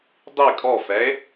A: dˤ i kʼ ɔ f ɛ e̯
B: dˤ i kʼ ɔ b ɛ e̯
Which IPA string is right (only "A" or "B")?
A